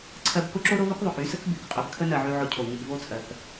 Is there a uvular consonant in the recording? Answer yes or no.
yes